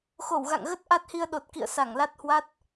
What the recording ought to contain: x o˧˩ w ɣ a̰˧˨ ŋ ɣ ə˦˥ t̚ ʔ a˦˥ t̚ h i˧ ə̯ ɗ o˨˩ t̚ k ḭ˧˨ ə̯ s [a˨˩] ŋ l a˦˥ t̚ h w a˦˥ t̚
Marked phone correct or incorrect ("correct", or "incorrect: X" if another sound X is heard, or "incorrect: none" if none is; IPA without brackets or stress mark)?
incorrect: a˧˩